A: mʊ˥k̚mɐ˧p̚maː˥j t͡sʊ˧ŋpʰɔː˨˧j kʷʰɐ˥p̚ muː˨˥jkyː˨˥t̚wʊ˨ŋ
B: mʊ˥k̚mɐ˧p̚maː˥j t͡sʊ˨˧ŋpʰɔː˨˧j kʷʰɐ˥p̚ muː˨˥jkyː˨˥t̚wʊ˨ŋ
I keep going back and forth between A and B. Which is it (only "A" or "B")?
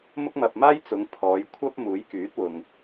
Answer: B